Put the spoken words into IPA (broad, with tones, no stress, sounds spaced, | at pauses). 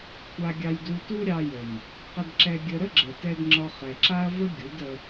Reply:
kʷʰ a˦ ɡʲ ɑ˦ j d u˦ t u˦ ɾʲ ɑ˧ j ə˨ m | q ə˧ d ǁ ɛ˧ ɡʲ ə˧ ɾ ə˦ ɡ͡ǁ ə˨ t ɛ˧ d ŋ͡ǁ ɒ˧ χ ɛ˨ ǁ a˦ ɐ̯ v ə˦ ɡʲ u˨˦ d ə˧